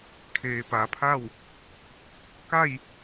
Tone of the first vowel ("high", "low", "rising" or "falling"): low